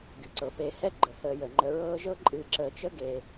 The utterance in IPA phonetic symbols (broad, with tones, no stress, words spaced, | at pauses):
ɡy˩ǀɤ˩ pe˨hɛ˥ ɡ͡ǃə˩həː˨ jə˩ŋ͡ǃə˨ɹɤː˦ ʒɤ˦ǃʼɨː˨ ǁəː˨t͡ʃə˥ɡe˨